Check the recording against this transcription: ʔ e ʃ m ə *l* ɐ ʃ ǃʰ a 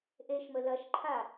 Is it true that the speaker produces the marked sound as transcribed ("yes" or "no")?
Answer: yes